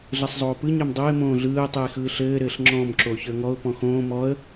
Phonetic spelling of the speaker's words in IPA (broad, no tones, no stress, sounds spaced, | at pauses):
ɮ ɘ sˤ zˤ oː p ɯ ɲ ɛ m dˤ o ɪ̯ m õː ɮ ɯː ə̯ tˤ ɯ ɪ̯ x ɯː ɬ ɘː ɾ ɘː ɬ ŋ͡ǁ ɔ̃ m ǁ o ç ə˞ ŋ ɔ ʊ̯ p ɔ̃ x õː m ɔ ə̯